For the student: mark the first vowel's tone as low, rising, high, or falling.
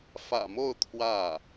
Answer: low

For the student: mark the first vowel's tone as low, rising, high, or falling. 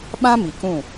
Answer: high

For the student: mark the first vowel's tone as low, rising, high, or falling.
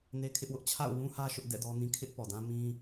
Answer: high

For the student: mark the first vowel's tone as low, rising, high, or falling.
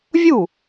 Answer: falling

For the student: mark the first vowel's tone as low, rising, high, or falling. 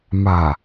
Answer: low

